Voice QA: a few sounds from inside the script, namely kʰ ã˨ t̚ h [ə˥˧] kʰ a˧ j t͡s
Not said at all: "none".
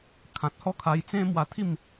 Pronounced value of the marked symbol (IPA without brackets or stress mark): ɔ˥˧